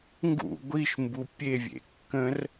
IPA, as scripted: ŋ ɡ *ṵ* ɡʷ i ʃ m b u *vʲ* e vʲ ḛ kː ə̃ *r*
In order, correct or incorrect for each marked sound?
correct, incorrect: pʲ, correct

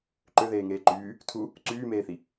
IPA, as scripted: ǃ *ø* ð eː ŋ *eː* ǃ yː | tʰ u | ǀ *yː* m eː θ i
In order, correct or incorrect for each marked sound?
correct, correct, correct

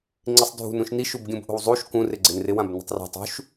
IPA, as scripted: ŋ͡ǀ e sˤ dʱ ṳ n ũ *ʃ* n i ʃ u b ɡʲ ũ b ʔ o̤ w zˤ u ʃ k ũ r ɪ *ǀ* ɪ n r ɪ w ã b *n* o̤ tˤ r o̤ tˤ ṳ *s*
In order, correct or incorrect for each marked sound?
correct, incorrect: ɡ͡ǀ, correct, incorrect: ʃ

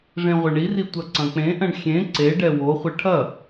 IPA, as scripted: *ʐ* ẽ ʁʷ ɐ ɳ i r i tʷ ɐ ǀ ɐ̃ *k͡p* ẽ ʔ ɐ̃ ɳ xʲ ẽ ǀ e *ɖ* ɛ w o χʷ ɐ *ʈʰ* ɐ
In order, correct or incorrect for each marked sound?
correct, correct, correct, correct

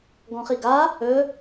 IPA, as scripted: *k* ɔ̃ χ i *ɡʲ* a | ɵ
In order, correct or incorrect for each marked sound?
incorrect: ɡ, incorrect: ɡ

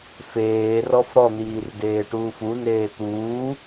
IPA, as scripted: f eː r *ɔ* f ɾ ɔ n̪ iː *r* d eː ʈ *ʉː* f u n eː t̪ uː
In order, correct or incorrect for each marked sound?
correct, correct, incorrect: uː

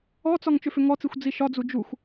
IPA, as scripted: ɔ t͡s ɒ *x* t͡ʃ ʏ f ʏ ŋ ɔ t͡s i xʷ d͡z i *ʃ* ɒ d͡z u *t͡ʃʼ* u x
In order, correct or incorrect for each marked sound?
incorrect: ŋ, correct, incorrect: d͡ʒ

